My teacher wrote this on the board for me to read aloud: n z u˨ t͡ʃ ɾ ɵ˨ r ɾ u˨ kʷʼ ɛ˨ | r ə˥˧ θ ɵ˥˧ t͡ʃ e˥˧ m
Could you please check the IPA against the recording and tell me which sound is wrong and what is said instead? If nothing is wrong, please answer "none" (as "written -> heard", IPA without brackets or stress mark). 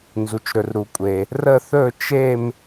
ɛ˨ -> e˨